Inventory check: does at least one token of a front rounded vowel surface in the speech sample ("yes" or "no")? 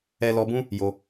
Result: no